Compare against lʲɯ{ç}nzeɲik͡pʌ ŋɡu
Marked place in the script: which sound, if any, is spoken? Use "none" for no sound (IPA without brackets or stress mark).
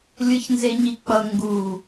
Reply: ç